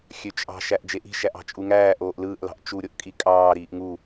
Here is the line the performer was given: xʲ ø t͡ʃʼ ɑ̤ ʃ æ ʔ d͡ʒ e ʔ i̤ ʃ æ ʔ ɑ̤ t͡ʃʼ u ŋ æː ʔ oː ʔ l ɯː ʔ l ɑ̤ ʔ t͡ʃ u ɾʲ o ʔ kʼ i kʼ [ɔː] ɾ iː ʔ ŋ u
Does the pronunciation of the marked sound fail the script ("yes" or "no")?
yes